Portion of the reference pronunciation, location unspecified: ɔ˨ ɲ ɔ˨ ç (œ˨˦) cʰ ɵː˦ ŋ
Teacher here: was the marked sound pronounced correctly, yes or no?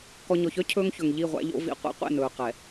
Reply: no